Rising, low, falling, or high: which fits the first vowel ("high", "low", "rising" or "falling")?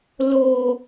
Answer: low